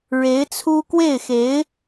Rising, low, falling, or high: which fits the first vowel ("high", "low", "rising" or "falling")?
rising